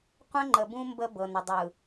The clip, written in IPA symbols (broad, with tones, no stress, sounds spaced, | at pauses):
qʷ ə̃˦ ŋ͡ǃ ə˨ b ũ˦ m b ə˦ b ɤ˨ n ə˨ dˤ ɯ˨